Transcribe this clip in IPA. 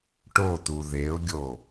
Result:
ʈ o t̪ u ð e ʊ̯ ɡʲ o

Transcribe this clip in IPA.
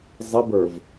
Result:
zˤ ɪ b ə˞ v

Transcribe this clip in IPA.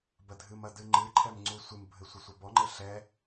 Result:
b ɐ dʱ ɨ m ɐ d ɨ ŋ͡ǃ ɨ ǃʰ ɛ m ŋ͡ǀ u sʷ ɨ m bʱ ɘ sʷ ɘ sʷ ɘ b ɔ ŋ͡ǃ ɘ ɬ ɛ

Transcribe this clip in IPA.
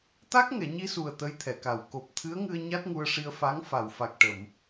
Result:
t̪ a˦˥ k̚ ŋ ɛ˨˩˨ ɲ i˧ s u˨˩ ə̯ t̪ ə˧˥ j t̪ʰ ɛ˨˩˨ k a˨˩ w k o˨˩ p̚ t̪ʰ ɨ˧˥ ə̯ ŋ ɨ˧ ə̯ ɲ a˦˥ t̚ ŋ u˧ ə̯ ʂ i˧ ə̯ f a˧˥ ŋ f a˨˩˨ w f a˨˩ k̚ ʈ ə˨˩˨ m

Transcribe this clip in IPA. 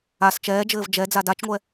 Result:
a s t͡ʃ ɛː d͡ʒ ɘː v d͡ʒ ɛ d͡z a d a t͡ʃ ŋʷ ɛ

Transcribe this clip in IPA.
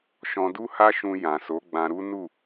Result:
ʃ ɔ̃˧ d u˦ h a˦ ʃ ũ˧ j ã˨ s o˨˦ ɡ͡b ã˧ ɾ u˦ n u˦˨

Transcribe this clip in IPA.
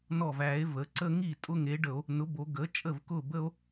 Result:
n ɔ˧˩ v æ˧˩˧ e̯ v ə˩˧ ǀ ə˦ ŋ i˥˩ tʼ ʊ˦ ŋ e˩˥ ɖ ə˧˩˧ o̯ | n ʊ˩˥ b o˩˧ ɡ ə˩˥ t͡ʃʼ ə˥˩ v k ʊ˥˩ b ə˦ o̯

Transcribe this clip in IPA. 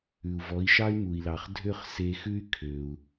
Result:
ʉ˩ u̯ v ɔ˩˥ i̯ ʃ ɑ˥ y̯ m u˩ i̯ l ɑ˩ χ dʱ ø˥˩ χ s e˧ x ʉ˥ y̯ kʰ ø˩ u̯

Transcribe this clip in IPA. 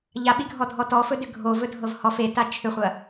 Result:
ʎ a ɓ i ɡʱ ɔ dʱ ɔ t ɔ f ɵ d ʏ ɡʱ o v ɵ dʱ ɤ v h ɔ f e t a t͡ʃʰ ʏ χʷ ɐ

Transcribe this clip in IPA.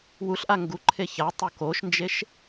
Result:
w u ɬ ʔ a ŋ ɡ u ǃʰ e ç a tˤ o k o ʃ n d͡ʒ e ʃ

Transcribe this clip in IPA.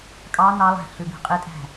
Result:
kʼ ɑ n ɑ lˠ æ̤ ɬ ʉ b e̤ qʼ i tʼ æ̤

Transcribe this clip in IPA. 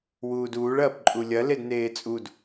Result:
w uː d uː ɭ ɐː p ǃʼ u lʲ ɐ l e d n eː t͡sʼ u d

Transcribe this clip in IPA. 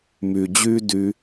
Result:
m y˨ d͡ʑ yː˦ d y˧

